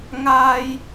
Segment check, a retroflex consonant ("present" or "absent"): absent